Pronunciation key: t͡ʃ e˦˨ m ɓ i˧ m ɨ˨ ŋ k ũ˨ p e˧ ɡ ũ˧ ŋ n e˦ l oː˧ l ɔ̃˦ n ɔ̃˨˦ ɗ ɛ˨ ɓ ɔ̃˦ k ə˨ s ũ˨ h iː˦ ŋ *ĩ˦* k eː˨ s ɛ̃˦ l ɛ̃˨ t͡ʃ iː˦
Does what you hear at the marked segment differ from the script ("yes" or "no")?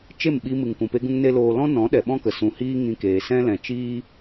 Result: yes